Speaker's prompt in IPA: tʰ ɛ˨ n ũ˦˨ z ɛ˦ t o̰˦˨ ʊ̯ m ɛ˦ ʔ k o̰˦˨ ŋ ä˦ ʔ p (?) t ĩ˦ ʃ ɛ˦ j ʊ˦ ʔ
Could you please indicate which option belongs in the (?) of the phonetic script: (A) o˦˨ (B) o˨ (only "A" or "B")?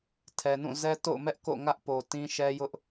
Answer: B